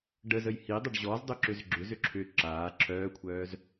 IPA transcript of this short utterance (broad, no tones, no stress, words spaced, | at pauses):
ɖəzəj hidˤəɖ ʑɔzdˤʏ ǁʏzɡ͡ǁʏzʏ ǁʰʏ ǁaː ǁʰœːkʷʰœːz